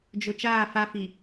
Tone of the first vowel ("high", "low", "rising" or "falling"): low